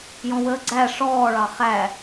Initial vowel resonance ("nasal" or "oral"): nasal